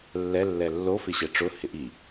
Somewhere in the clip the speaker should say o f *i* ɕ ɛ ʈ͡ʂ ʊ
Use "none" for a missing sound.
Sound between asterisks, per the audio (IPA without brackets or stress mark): ɪ